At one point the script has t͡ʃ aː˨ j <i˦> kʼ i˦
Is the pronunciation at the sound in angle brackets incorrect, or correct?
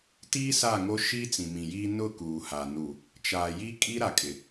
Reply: correct